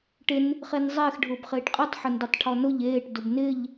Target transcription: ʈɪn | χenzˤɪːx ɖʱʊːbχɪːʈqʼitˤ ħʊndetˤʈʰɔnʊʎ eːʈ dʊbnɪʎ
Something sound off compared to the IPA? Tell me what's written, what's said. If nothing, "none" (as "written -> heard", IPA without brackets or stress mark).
none